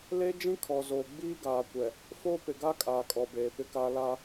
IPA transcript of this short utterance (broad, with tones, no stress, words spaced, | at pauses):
le˦d͡ʒĩ˦ kʰɔ˨zoː˨ ɡ͡biː˦ɡaː˨kʷɛ˨ | foː˦ pɪ˨ɡa˦ kʼaː˨kʼɔ˨beː˨ pɪ˦kaː˦ laː˦